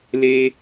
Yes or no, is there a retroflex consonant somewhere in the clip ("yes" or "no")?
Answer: no